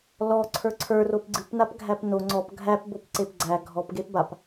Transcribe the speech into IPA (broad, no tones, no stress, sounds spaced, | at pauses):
l ɔ ǀʰ ə˞ ǀʰ ə˞ r o p ɡ͡ǀ ɨ p n a p ɡʱ æ p n o ŋ͡ǀ ɔ p ɡʱ æ p b o p ǀ e p ɡ͡ǀ æ ɡʱ ɔ p ɡ e p b a p